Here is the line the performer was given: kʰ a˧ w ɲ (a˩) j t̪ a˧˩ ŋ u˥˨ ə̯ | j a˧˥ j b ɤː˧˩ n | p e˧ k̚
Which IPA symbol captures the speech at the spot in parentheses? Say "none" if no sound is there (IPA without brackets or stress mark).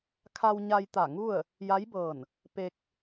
a˧